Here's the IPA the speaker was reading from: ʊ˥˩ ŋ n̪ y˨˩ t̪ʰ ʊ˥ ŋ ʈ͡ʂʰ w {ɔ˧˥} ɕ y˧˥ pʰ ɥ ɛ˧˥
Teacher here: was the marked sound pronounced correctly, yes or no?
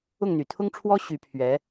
no